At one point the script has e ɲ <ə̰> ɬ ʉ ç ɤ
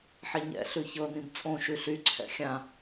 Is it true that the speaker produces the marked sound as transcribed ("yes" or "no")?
no